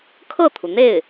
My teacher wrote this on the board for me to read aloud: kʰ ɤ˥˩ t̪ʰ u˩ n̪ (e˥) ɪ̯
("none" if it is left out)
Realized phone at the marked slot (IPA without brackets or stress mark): e˥˩